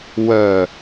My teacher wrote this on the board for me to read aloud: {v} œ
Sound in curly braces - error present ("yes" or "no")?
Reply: yes